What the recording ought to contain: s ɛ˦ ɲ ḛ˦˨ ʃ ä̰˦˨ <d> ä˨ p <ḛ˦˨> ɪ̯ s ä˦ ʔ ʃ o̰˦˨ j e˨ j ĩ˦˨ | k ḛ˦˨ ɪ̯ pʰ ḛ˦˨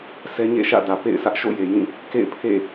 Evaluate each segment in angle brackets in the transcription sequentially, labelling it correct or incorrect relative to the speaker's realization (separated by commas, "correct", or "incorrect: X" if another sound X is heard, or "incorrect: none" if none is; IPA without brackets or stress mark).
correct, correct